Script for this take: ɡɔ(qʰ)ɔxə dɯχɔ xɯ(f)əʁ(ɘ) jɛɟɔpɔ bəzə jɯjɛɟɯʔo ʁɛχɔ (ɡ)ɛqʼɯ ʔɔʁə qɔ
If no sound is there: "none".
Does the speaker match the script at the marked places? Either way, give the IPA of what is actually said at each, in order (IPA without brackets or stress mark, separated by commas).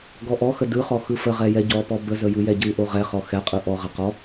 ʔ, f, ɛ, x